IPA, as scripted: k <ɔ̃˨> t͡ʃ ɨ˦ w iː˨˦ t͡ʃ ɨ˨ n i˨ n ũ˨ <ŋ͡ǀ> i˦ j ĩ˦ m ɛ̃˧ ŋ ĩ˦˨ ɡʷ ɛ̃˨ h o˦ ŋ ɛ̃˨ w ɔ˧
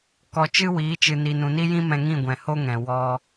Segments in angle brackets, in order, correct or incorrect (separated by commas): incorrect, incorrect